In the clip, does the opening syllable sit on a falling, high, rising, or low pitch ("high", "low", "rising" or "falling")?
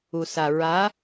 low